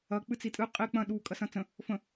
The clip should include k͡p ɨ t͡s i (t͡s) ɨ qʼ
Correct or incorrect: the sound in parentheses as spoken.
incorrect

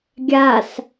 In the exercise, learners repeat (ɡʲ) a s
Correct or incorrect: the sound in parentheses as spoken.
correct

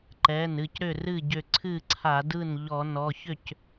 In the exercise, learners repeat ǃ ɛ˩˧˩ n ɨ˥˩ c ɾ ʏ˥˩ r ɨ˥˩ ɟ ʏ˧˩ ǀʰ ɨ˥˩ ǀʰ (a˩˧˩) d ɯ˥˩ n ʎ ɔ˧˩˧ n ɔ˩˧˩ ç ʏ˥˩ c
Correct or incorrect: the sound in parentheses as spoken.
incorrect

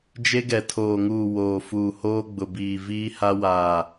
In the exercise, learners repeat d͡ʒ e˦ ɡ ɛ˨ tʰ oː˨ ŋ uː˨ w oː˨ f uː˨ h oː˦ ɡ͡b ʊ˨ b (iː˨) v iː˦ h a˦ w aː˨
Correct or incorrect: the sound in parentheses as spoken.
correct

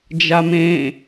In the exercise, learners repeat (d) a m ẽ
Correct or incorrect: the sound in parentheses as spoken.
incorrect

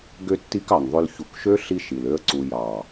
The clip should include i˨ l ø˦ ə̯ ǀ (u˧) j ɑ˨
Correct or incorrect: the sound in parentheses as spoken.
correct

